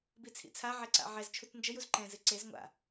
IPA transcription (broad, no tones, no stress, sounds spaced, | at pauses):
b i t͡sʰ ḭ t͡sʰ a ʕ ɛ ǀ a̰ ʕ ɛ z t͡ʃʰ u t n d͡ʒ ɘ j u z ǃ ɛ̃ z ɨ ǀ e z ŋʷ a̰